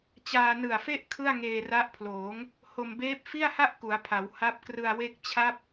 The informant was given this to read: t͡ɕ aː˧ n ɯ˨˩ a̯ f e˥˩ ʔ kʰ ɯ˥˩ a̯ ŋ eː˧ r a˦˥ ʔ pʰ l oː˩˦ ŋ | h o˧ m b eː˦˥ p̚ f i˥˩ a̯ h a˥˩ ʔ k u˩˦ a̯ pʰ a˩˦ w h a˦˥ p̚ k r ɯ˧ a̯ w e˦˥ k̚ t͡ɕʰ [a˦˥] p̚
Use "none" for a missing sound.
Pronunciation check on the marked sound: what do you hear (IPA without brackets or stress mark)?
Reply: a˦˥